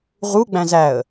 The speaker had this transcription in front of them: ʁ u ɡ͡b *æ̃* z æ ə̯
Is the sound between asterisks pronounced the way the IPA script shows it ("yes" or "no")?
yes